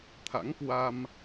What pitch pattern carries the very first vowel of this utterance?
rising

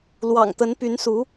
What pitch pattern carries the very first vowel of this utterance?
low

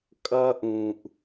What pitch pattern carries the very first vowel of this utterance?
high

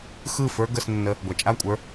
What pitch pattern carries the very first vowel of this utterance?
falling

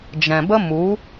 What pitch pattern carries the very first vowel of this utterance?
low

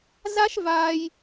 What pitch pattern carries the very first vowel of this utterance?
high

